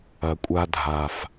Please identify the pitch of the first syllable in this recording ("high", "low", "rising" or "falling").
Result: low